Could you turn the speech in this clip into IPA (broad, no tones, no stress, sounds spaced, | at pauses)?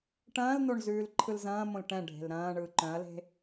ʈ ɐ̃ː l n o ɳ z ʉː l ǃʰ ɯ l z ɐ̃ː m õ l ʈ ɛ̃ ɖʱ e̤ l ɾ ɐ̃ː ɳ ɯː ǃ œ̃ ɐ̯ l e̤